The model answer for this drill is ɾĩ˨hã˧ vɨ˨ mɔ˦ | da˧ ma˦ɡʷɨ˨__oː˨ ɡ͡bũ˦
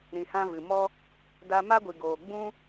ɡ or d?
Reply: ɡ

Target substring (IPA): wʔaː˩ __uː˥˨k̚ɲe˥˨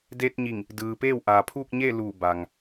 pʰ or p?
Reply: pʰ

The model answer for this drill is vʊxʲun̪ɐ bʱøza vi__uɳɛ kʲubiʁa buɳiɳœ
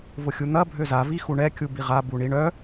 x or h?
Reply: x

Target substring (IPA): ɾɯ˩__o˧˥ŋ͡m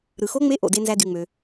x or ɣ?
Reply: x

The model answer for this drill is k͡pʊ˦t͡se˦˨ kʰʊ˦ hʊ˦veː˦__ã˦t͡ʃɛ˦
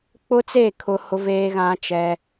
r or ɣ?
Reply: ɣ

